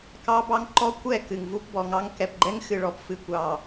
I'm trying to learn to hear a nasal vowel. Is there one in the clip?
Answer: no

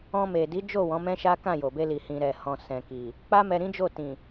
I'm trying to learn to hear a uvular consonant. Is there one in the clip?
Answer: no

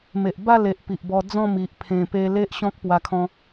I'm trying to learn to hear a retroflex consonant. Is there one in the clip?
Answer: no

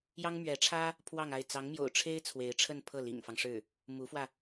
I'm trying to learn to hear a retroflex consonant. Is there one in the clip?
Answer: yes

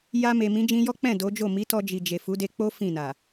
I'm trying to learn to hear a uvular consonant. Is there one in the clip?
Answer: no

